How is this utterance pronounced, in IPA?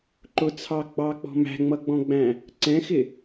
ǃ ʊ t͡sʰ ɑ ɡ͡b ɑ k͡p ɔ̤ m æ̤ ŋ͡m ʌ ɡ͡b ɔ̃ ɡ͡b æ̃ | ǀ ɛ̃ x ɪ

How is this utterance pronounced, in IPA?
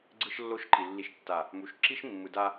ɡ͡ǀ ɯ˦ ʃ lː o˦ ʃ ǃ i˨ lː i˨ ʃ tː a˨ | m u˨˦ ʃ ǁ i˦ ʃ mː ɯ˨ d a˦

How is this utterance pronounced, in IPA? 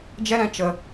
d͡ʒ ɛ˧ ɾ ɛ̃˨ t͡ʃ ə˨

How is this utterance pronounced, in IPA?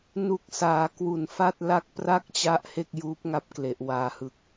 n u˨˩ k̚ s aː˩˦ k w u˨˩ n f a˥˩ t̚ l a˦˥ k̚ p r a˥˩ k̚ t͡ɕ a˦˥ ʔ h e˥˩ k̚ j uː˦˥ p̚ ŋ a˥˩ p̚ k l e˨˩ ʔ w aː˨˩ h ɯ˨˩ k̚

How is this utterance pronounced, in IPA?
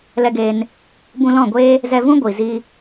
l ɛ˧ ɡ eː˧ n | b ũ˧ l ɔ̃˦˨ ɡʷ eː˦ | z ɛ˧ v ũ˦ ɡʷ i˨ z i˧

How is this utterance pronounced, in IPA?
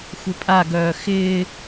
xʷ ɪ pʼ a ɡ œː x ɪː

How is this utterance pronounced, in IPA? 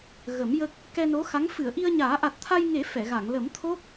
ɣ ə˨˩˦ m j ə˦˥ k̚ | k ɛ˧ n o˧˥ x a˧˥ ŋ f ɨ˨˩˨ ə̯ ʔ i˧ ə̯ ɲ aː˨˩˦ ʔ a˨˩ t̚ t̪ʰ a˧ j ŋ e˨˩˦ f ɛ˨˩˨ ɣ a˨˩˨ ŋ l ə˨˩˦ m t̪ʰ o˦˥ k̚

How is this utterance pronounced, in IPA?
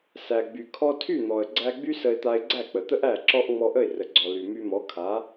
s æ˩ ɡ͡b y˩ kʰ ɔ˧ tʰ y˥˩ n̪ ɔ˩ ə̯ ɡ͡ǀ æ˧ ɡ͡b y˥ s ə˧ ɪ̯ t̪ a˧ ɪ̯ ɡ͡ǀ æ˥˩ k͡p ə˩ t̪ ə˥ ʔ æ˥˩ ǁ ɔ˥ ʔ ŋ͡m ɔ˧ ʔ ə˥˩ ɪ̯ r ə˩ ɡ͡ǀ ɔ˩ l y˩ m y˧ m ɔ˩˥ kʰ a˩˥

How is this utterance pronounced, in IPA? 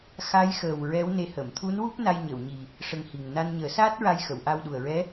x a˧˥ j x əː˨˩ w ɹ ɛ˧˥ w n e˧˥ h ə˨˩˨ m t̪ʰ u˧˥ n w u˦˥ p̚ n a˧ j ɲ ə˨˩˨ w ɲ i˨˩ | ʂ ə˧ ŋ h i˨˩ ŋ n a˧ n ɲ əː˨˩˦ s aː˦˥ t̚ ɹ a˧ j x ə˨˩˨ w ʔ a˧ w ɗ u˨˩ ə̯ ɹ ɛ˧˥

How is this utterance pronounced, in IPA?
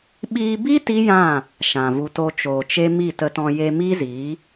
ɓ iː˧ b i˦ t i˦ j ã˦˨ | ʃ ã˨ v u˧ t o˧ t͡ʃ oː˨ t͡ʃ e˦ m i˦˨ t ə˧ t ɔ̃˧ j e˧ m iː˦ z iː˨˦

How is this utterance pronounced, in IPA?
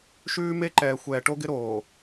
ʃ ʉː˦ m e˦ ǃ ɛː˨ xʷ ɛː˨ ʈ o˦ ɡ ɪ˦ ɾ oː˨

